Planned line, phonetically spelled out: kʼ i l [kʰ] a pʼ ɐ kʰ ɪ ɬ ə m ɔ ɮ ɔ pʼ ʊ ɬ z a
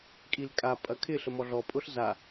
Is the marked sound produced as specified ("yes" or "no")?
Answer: no